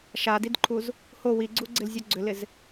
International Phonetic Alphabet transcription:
ʃadidǃʰuz | ho wiɡ͡ǀuɡ͡ǀɪlzʲu ɡ͡ǀʏlɪz

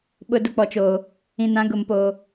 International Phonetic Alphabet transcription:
ɓʊ˨ dʊ˦k͡pɔ˨t͡ʃoː˨ | ĩ˨nã˨˦ ɡʊ˨mpoː˨

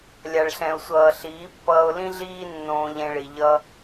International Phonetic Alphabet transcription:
lʲa˨ɭɬɛ̃˨ʊ̯sʷʌː˨ ɬiː˨˦pːʌː˧ʊ̯ lĩ˦ɮiː˦ nːõː˧ʎẽ˧ɭi˨ ʎʌ˦

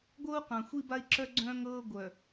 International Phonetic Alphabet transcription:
ɡʷɤ˦u̯qã˨xʷi˦ ba˦i̯ǁœ˦ɡ͡ǀœ̃ː˦ŋɤː˦ ɡʷœ˨

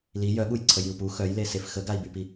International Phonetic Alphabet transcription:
li jœɠuj ǀʰəjiu̯pu xœj lesef xəɡai̯bypi

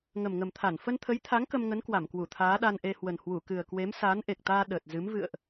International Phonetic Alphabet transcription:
ŋə˨˩mŋə˨˩mt̪ʰa˧˩n fə˧nt̪ʰə˨˦jt̪ʰa˨˦ŋ kə˧mŋə˨˦nkwa˧˩mkwu˧˩ t̪ʰaː˨˦ɗa˧nʔe˧hwə˨˩n hwu˧˩kɨ˨˩ə̯kwe˨˦m saː˨˦nʔe˨˩k̚t̪aː˧ ɗəː˨˩t̚ zɨ˨˦m vɨ̰˧˨ə̯ʔ

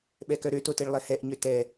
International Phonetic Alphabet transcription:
ɓɛkœɾø toteɭlˠɛhɛʔ ɲøtɛ

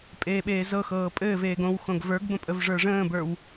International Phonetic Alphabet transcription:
pʼeːɓeːzɤxɤː pʼɘːveːɡ õw xõɡvə˞ɡbə̃ pʼəvʐə˞ʐə̃ːbə˞w

